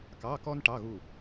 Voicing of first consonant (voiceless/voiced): voiceless